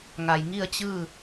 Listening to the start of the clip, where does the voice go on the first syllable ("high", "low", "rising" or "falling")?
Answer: low